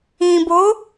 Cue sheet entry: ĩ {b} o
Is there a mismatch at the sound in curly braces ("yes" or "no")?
no